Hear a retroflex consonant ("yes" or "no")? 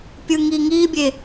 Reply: no